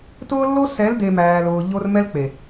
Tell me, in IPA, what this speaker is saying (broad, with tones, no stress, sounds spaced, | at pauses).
t ʊː˦ lː o˦ s ɛ˨˦ l d e˨ m æː˨ l ʊː˨ ʎ o˦ r m ɛ˦ l k͡p e˨